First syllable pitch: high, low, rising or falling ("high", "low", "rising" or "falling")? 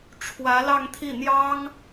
rising